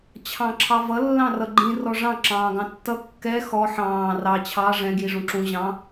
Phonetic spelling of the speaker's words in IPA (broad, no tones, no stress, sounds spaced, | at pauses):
t͡ɕʰ ɑ̃ ǁʰ ɑ v ʌ lː ɑ̃ r ʌ ɡ͡ǃ ĩ r ɔ ʐ ɑ̃ ǁ ɑ̃ː ɡ ɑ̃ tː ʌ kː ɛ x ɔ ħ ɑ̃ː r ɑ t͡ɕʰ ɑ ʐ ɛ̃ ɡ j i ʐ ũ ǁ ũ ʑ ɑ̃